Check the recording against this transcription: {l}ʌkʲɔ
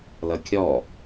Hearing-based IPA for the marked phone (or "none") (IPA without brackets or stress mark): l